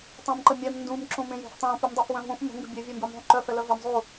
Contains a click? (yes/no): yes